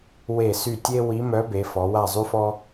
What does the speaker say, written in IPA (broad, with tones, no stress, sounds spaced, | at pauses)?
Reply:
w e˦˨ s y˦˨ tʲ e˥ w i˧˥ m œ˧˥ b e˩˧ f ɔ˩˧ w a˦˨ zˤ y˥ f ɔ˥